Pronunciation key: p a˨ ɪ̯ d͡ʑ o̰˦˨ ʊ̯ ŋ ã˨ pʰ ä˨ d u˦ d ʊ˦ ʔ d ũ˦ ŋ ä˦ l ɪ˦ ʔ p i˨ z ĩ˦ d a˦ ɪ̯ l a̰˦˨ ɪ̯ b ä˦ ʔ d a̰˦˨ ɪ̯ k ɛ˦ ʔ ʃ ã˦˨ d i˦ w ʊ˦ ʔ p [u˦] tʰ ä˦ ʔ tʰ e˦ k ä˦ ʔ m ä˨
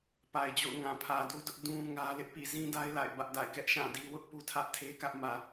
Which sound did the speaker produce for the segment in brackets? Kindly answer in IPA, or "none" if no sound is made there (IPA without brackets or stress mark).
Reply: u˦